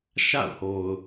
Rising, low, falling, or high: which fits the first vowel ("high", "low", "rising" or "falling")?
falling